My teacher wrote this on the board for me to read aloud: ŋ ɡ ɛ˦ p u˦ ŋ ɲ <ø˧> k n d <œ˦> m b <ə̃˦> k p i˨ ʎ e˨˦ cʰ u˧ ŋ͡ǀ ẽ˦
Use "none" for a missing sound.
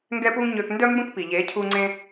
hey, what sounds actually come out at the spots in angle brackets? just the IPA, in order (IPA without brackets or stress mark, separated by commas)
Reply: ø˧, œ˦, ə̃˦